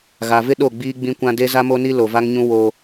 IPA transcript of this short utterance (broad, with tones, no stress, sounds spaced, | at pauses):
ɣ a˨ v ɪ˦ ɗ o˦˨ ɡ͡b iː˦ ɡ͡b ĩ˦ kʷ ã˦ d e˦ z a˦ m o˦ n i˦ l o˨ v a˦ ŋ ɲ ũ˦ w o˦